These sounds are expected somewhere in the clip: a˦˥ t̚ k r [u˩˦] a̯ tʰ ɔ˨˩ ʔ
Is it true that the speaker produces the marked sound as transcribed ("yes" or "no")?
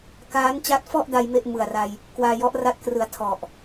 no